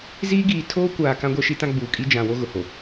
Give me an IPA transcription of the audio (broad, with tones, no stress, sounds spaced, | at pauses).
z iː˦ ɡ iː˨ tʰ oː˦ kʷ aː˨ k ã˦ ɡʷ ɛ˦ ʃ i˦ t ã˦ ɡ͡b uː˨ kʼ i˦ d͡ʒ ã˨ w o˦ ɣ ʊ˨ h o˨